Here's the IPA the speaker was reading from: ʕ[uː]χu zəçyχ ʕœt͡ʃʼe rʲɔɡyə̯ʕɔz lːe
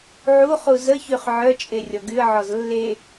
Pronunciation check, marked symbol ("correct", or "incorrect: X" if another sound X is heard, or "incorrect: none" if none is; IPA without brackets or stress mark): incorrect: u